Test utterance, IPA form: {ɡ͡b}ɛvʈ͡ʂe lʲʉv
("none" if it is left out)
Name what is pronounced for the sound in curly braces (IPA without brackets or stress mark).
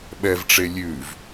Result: ɓ